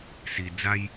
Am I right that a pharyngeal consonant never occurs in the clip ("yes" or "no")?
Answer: yes